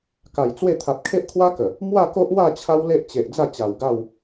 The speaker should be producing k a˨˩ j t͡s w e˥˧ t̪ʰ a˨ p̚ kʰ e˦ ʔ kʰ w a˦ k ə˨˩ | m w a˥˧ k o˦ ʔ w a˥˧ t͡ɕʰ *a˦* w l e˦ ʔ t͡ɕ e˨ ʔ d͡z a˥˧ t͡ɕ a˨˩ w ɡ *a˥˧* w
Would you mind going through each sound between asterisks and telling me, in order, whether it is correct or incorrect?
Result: correct, correct

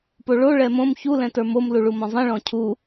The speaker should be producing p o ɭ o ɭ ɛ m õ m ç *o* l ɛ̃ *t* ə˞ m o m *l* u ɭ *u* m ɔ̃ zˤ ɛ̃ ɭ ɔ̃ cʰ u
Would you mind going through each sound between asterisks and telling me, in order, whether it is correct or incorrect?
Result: incorrect: u, correct, correct, correct

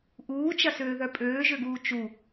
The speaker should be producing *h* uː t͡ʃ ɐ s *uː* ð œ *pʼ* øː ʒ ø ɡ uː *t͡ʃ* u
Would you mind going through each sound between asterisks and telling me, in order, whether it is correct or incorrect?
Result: incorrect: ʔ, incorrect: øː, correct, correct

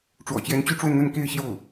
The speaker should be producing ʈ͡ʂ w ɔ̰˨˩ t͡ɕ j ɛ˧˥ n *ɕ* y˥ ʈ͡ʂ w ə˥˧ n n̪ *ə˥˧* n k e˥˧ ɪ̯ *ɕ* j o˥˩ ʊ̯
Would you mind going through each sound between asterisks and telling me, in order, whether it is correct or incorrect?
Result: incorrect: t͡ɕ, correct, correct

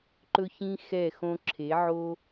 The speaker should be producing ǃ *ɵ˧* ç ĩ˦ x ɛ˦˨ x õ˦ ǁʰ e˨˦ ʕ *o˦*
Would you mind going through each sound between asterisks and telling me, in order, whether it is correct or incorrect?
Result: incorrect: ɵ˦, correct

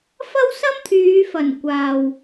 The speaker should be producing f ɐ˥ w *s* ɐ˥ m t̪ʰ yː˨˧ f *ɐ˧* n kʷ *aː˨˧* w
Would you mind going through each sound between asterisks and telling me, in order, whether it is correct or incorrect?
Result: correct, incorrect: ɐ˨˩, incorrect: aː˨

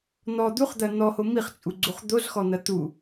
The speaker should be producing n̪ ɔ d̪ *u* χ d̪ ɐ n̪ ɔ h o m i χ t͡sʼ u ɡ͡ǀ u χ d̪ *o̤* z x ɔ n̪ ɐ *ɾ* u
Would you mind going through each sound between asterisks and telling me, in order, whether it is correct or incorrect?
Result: correct, incorrect: o, incorrect: t̪

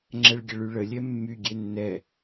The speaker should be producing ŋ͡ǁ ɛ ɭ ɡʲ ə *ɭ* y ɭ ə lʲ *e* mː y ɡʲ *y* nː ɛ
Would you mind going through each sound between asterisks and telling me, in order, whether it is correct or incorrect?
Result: correct, incorrect: ɛ, incorrect: e

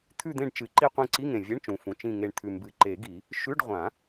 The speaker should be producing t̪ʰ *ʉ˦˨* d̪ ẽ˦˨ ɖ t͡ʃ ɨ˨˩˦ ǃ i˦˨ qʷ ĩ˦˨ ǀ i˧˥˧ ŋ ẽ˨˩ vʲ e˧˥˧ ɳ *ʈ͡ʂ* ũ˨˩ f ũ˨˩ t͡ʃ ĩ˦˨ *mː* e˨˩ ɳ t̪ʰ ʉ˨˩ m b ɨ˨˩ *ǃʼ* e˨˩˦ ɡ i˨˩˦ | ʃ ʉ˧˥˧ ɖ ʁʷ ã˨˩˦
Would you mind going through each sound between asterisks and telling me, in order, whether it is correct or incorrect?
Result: correct, incorrect: t͡ʃ, incorrect: ŋ, incorrect: ǃ

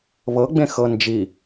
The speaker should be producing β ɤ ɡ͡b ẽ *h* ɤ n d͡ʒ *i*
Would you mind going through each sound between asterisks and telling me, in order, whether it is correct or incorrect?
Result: incorrect: x, correct

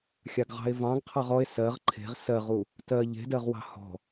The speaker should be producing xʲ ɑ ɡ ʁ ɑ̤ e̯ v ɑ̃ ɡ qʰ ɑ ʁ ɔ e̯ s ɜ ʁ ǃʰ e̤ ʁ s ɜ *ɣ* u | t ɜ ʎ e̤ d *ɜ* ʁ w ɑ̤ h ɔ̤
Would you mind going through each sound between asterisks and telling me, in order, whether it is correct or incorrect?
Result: incorrect: ʁ, correct

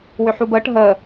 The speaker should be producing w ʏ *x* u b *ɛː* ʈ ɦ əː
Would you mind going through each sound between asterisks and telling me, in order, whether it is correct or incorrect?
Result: incorrect: ħ, incorrect: əː

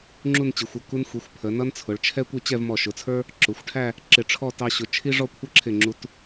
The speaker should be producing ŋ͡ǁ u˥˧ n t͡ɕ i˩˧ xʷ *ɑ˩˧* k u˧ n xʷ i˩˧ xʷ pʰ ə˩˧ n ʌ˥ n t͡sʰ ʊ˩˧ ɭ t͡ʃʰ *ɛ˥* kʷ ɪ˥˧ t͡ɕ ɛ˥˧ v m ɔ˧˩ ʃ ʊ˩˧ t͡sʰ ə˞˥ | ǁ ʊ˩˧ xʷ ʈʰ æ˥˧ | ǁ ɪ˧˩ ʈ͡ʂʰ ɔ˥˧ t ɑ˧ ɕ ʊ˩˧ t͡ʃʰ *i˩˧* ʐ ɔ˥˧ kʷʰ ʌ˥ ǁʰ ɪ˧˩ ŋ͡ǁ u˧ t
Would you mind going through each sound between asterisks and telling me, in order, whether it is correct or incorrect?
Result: incorrect: ʌ˩˧, correct, incorrect: i˥

